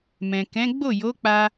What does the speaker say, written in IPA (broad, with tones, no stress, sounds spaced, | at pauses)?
m ɛ̃˨ k ɛ̃˨˦ ɡ͡b o˦˨ j o˨˦ k͡p a˧